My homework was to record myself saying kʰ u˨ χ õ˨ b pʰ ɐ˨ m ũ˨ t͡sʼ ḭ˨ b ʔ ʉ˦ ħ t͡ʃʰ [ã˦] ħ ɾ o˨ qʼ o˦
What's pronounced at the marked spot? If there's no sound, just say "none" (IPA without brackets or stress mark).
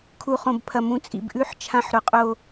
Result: ã˦